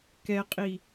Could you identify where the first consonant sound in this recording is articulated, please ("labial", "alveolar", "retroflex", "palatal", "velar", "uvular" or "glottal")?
velar